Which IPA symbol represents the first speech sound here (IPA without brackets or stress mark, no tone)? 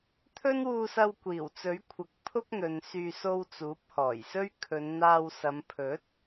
t̪ʰ